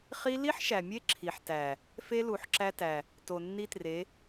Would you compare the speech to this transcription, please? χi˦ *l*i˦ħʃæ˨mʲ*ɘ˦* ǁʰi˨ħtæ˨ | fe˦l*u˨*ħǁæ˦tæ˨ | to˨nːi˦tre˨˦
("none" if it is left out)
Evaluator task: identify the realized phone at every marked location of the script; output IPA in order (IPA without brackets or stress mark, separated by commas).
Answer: l, e˦, u˨